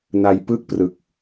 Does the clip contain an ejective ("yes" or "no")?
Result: no